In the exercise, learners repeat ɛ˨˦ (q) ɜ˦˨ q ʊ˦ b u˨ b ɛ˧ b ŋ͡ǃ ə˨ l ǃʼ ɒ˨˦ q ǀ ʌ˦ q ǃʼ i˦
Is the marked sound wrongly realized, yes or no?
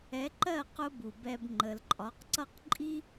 yes